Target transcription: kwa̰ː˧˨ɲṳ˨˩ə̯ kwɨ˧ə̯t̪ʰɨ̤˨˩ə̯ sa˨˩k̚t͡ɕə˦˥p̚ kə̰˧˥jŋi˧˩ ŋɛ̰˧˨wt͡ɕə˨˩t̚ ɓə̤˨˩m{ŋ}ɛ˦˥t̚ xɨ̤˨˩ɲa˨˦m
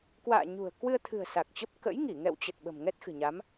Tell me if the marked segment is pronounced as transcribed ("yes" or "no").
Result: yes